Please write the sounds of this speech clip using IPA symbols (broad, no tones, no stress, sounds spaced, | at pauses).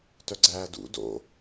t œ ɡ͡ǀ æː d ṵ d o̰